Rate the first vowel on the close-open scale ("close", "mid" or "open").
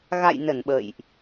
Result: open